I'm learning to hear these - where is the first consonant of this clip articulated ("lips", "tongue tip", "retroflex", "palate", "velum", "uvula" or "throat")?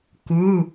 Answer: velum